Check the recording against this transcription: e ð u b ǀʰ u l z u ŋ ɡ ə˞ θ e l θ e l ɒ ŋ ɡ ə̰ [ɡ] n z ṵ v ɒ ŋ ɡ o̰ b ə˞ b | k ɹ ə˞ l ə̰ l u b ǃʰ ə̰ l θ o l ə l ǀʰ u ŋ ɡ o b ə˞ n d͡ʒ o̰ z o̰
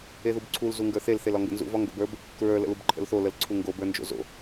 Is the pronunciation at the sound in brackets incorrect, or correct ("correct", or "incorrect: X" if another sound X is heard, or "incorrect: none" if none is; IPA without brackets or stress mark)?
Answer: incorrect: none